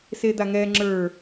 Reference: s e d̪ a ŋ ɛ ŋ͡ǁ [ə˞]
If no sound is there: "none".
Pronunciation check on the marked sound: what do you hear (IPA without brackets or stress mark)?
ə˞